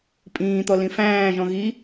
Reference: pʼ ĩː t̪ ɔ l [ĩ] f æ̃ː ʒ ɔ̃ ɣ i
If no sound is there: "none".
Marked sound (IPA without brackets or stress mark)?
ĩ